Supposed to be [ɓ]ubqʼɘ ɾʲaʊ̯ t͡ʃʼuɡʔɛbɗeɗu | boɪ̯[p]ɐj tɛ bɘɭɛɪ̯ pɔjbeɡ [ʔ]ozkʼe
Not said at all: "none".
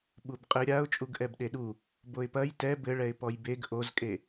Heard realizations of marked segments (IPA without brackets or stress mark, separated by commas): ɓ, p, ʔ